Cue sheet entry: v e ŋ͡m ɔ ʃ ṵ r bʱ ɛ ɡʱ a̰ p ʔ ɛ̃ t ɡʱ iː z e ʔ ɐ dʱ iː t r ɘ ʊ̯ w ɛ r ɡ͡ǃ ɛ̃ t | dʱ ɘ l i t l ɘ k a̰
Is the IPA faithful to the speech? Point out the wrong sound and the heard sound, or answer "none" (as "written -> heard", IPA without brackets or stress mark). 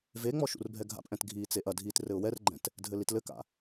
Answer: z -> t͡s